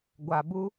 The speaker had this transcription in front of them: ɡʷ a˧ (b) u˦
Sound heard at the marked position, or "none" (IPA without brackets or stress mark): b